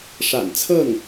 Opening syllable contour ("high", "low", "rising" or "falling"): low